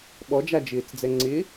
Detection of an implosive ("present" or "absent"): present